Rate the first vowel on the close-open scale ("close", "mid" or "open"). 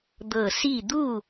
mid